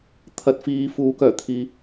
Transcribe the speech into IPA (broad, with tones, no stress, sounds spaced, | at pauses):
t̪ʰ ɐ˨˥ t̚ f iː˨˧ f uː˨˥ k œː˨˩ t̪ʰ iː˨